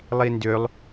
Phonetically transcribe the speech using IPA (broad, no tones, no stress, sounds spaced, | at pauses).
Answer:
lˠ i n d ø lˠ